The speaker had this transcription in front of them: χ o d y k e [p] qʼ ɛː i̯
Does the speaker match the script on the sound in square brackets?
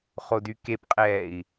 yes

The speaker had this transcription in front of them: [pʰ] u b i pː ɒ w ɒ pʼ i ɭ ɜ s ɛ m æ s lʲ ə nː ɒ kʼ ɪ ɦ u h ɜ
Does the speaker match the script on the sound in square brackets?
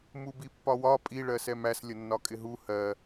no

